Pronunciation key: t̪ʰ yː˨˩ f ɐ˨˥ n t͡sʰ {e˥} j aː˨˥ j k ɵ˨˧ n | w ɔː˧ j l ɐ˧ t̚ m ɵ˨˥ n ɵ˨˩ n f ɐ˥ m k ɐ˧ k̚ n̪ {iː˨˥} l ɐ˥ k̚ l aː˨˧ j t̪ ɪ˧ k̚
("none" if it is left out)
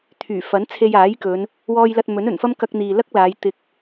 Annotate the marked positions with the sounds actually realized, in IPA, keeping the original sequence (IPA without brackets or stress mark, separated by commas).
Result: e˧, iː˨